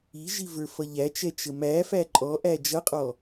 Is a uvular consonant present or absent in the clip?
present